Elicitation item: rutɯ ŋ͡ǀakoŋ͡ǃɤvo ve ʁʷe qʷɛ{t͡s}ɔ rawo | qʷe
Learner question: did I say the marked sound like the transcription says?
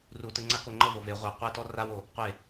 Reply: no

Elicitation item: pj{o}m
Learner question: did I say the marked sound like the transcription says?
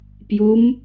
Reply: no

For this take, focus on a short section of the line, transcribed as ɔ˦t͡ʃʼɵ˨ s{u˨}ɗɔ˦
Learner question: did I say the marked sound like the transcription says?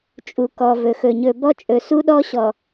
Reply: no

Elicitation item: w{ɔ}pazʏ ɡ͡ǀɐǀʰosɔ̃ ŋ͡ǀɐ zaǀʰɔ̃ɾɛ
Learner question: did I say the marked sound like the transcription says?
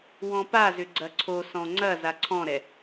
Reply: no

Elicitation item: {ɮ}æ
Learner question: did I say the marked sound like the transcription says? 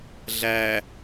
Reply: yes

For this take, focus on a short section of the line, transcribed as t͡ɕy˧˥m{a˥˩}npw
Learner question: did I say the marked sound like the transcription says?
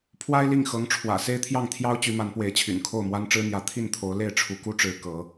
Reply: no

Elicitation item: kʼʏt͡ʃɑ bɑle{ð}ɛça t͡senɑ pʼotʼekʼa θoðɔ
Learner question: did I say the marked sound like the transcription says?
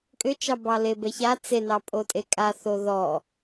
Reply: no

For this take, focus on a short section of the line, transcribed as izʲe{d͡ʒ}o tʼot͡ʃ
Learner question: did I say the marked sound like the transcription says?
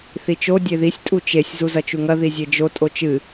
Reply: yes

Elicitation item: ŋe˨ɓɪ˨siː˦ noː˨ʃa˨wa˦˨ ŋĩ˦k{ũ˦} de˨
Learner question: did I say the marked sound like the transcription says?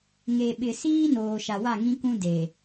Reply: yes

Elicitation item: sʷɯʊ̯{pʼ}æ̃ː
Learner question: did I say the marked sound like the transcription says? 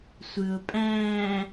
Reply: yes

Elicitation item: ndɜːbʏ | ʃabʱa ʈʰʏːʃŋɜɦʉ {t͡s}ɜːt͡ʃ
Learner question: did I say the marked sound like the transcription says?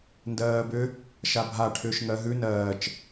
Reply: no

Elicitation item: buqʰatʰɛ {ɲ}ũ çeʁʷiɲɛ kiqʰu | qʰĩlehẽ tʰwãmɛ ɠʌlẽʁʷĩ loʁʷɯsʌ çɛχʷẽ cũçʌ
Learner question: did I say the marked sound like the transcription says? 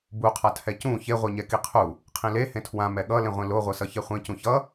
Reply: no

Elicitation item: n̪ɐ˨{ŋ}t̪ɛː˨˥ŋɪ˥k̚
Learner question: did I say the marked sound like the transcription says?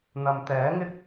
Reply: no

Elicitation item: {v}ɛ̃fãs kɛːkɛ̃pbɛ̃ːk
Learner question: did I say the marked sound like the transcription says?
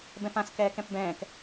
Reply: no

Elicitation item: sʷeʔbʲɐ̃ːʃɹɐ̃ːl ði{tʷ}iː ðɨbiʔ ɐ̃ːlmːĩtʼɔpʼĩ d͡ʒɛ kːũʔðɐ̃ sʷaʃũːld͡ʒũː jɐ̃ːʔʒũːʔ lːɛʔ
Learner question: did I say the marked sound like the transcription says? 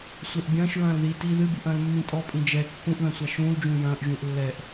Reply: no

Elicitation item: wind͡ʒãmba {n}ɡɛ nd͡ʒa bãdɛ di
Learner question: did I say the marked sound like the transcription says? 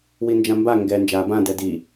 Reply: no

